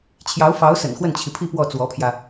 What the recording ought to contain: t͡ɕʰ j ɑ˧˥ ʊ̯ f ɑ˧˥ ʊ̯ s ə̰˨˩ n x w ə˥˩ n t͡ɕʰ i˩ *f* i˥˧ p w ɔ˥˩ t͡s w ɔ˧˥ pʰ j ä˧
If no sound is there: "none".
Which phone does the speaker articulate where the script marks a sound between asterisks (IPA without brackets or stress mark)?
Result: pʰ